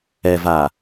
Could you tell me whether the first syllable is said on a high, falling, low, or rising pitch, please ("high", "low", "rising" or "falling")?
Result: low